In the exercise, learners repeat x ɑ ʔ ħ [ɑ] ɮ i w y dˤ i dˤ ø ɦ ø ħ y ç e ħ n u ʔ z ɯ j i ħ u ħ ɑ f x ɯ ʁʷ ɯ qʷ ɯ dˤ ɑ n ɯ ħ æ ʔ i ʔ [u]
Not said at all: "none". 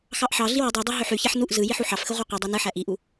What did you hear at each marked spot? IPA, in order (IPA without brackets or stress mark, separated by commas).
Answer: ɑ, u